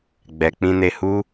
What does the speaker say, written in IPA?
ɡ͡b ɛ˨ k͡p ĩ˧ n e˧ h u˦

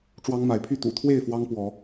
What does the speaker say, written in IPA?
ʈ͡ʂ w ɑ˦ ŋ m a˨˦ ɪ̯ pʰ y˥˨ t̪ ṵ˨˩ t̪ʰ w e˥˨ ɪ̯ f w ɑ˦ ŋ p w ɔ˨˦

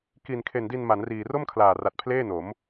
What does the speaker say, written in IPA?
k i˨˩ n kʰ e˨˩ n d i˧ n m a˩˦ n r iː˨˩ r o˥˩ m kʰ l aː˨˩ r a˨˩ t̚ pʰ l eː˥˩ n o˩˦ m

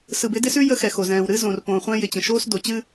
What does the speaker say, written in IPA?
s ɯ˨ b ɪ˦ d ɪ˦ s ʉ˦ j ə˦ x ɛ˨ x o˨ z ɛ̃ː˨ w ɾ ɨ˦ z õ˨ r p õː˨ χʷ ɛ̃˦ j ɪ˨ t͡ɕ ə̃˨ ʃ oː˦ s d o˨ t͡ɕ ɨ˦

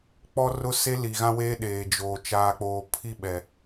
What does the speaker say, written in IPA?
k͡p ɔ˦ r ʊ˦ s e˦ l i˨ ɣ ã˦ w eː˦ ɗ eː˨ d͡ʒ oː˨ t͡ʃ aː˨ k͡p oː˨ pʰ i˦ ɓ ɛ˨

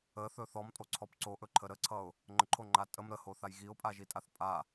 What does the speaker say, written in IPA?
ə θ ɵ θ ɔ m tʼ o ǀʰ ɔ p ǀ o ʔ ɵ ǃʰ ə ɾ ə ǀʰ ʌ ʊ̯ | ŋ͡ǃ ə ǃʰ o ŋ͡ǃ a tʼ ə m ɾ ə h o θ a j ɣ i ʊ̯ pʼ a ʒ i tʼ a θ pʼ a

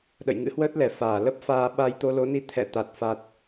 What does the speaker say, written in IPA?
ɗ ə̰˧˨ j ŋ ɨ̰˧˥ h w əː˦˥ t̚ l ɛ˨˩ f aː˧˩ l ə˦˥ p̚ f aː˧ ɓ a˧ j t̪ o˧ l o˨˦ n i˧ t̪ʰ ɛ̰˧˨ t̪ a˨˩ t̚ f a˨˩ t̚

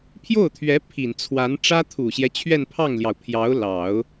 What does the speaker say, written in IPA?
pʰ j o˥˩ ʊ̯ t̪ʰ ɥ ɛ˧˥ pʰ i˨˩ n t͡sʰ w a˧˥ n ʈ͡ʂ ä˥ t̪ʰ u˨˩ ɕ j ɛ˦ t͡ɕʰ ɥ ɛ˥˧ n pʰ ɑ˥˩ ŋ l j ɑ˩ ʊ̯ pʰ j ɑ˧˥ ʊ̯ l ɑ˨˩˦ ʊ̯

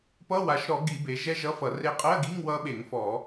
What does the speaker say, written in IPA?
p ʌ˧˥˧ w a˩˧ ʃ ɾ ɔ˧˩˧ ɡ i˧˩˧ b e˩˧ ʒ ɛ˦˥ ʒ ʌ˧˥˧ f ʌ˧˩˧ r e˦˥ qʼ ɜ˧˥˧ ɡ i˧˥˧ ŋ w ʌ˦˥ ɓ e˧˩˧ ŋ f ɔ˧˩˧

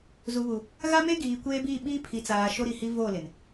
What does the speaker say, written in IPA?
z u˨ β u˨ | ɣ a˦ m e˦ ɡ iː˨ kʷ eː˦ b i˦˨ ɓ iː˦ pʰ i˨ t͡s aː˨ ʃ o˦ ɾ i˨ h i˦ v o˦˨ l ɪ˨ n

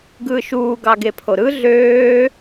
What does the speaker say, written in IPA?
ɡ ɯː ʃ uː ɡ ɑ ɡ e pʰ o ɾ ɯ ɮ øː

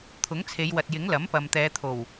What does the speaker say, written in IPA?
t̪ʰ ʊ˨˥ ŋ t͡sʰ e˨˧ j w ɐ˨ t̚ j ɪ˨˥ ŋ l ɐ˨˥ m p ɐ˨ m t̪ ɛː˨˧ t̪ʰ o˨˩ w

